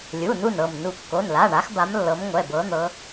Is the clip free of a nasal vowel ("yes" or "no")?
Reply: yes